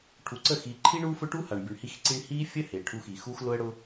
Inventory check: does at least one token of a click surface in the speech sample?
yes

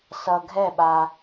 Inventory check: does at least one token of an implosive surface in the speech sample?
yes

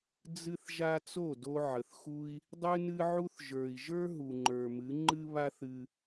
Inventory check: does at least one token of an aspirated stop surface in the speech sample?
no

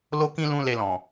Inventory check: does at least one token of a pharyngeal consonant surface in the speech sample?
no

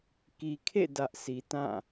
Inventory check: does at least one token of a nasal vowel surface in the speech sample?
yes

